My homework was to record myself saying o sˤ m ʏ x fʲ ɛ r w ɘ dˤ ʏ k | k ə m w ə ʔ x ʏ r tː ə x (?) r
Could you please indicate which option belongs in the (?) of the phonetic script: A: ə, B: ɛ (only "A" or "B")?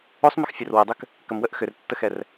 B